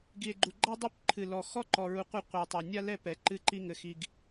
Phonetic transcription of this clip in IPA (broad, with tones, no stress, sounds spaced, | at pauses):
ɡ i˨ e̯ ɡ͡ǃ u˨ ɡ͡ǃ a˦ dˤ u˦ p ǃʰ ɨ˨ l ɔ˨ x ɔ˦ ǃ ɔ˨ ɹ u˨ qʷ ɘ˦˨ qʷ ɘ˨ o̯ tˤ a˨ nʲ a˦ l ɛ˦˨ p ɛ˨ ǃ ɨ˦˨ ǃ i˦ ŋ ɘ˨ x i˨ ɡ